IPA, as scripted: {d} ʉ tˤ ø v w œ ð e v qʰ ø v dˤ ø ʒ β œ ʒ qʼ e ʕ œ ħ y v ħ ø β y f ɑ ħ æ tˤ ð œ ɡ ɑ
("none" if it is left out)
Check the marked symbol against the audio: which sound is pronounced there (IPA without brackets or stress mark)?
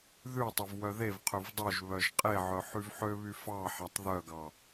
ð